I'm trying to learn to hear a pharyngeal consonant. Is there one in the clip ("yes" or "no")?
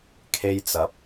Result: no